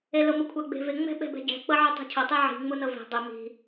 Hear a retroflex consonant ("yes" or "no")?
no